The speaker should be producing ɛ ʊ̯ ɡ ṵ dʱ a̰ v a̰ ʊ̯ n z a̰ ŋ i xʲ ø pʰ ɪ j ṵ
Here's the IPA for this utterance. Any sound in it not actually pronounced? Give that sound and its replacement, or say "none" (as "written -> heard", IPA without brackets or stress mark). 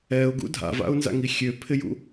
none